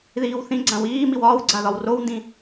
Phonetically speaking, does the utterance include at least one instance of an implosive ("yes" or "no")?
no